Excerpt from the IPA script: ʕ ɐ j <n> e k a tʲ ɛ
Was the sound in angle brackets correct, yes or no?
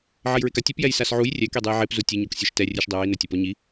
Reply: no